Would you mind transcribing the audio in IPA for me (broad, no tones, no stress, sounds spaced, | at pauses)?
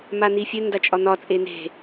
m a n i fʲ ɘ n d a t͡ʃʼ ɒ n̪ ɒ t͡sʼ e n̪ e̤